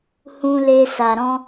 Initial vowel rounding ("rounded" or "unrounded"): rounded